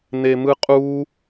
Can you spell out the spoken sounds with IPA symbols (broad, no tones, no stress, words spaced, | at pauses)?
nemɯqʼu